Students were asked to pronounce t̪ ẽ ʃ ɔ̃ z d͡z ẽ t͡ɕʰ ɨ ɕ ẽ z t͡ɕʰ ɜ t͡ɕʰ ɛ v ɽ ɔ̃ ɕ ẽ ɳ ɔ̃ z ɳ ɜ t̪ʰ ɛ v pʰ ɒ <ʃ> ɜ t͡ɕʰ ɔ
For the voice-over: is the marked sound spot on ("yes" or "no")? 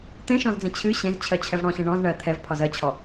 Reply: no